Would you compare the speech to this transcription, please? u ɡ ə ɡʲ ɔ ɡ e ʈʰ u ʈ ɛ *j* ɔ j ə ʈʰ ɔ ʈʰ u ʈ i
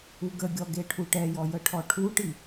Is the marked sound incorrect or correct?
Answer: correct